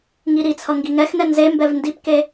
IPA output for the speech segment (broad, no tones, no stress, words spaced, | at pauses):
ŋiɾit͡sʰʌ ŋɡiŋɛxnɛ nzembɛv ndipke